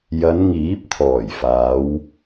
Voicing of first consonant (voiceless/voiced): voiced